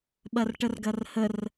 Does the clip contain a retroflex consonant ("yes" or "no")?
yes